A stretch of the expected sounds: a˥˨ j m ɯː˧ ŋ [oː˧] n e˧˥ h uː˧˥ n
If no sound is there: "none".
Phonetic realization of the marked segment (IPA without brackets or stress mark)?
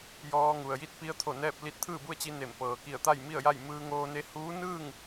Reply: oː˧